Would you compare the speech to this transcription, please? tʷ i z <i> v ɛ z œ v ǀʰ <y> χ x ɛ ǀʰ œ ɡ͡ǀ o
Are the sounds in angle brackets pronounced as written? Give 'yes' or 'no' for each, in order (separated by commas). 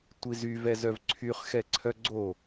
no, yes